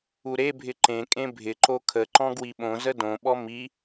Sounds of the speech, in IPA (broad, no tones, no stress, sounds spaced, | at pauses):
u ɾ e bʱ ɪ ǃ ẽ kʼ ẽ bʱ ɪ ǃ o kʰ ə ǃ ɔ̃ ɡ w i ɓ õ z ə d õ ɓ ɔ m i